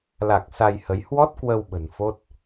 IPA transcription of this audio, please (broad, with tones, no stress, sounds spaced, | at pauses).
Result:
l a˨˩ k̚ s a˧ j h ə˨˦ j h w ɔ˦˥ t̚ k w ə˧ w ɓ ə̤˨˩ n f o˦˥ t̚